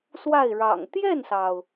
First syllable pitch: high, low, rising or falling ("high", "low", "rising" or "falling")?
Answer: falling